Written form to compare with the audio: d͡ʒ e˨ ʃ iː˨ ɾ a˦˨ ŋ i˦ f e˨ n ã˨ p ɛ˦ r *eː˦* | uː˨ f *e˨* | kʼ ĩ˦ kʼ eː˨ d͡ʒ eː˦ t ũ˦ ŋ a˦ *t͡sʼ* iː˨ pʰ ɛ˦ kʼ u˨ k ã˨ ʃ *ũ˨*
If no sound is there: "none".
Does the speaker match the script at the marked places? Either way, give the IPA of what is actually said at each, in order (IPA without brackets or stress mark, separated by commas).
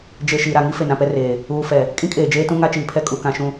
eː˨, ɛ˨, t͡ʃ, ũ˨